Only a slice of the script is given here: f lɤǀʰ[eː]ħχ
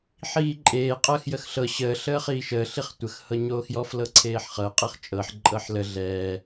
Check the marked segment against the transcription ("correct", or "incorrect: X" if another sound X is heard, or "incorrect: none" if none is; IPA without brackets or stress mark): correct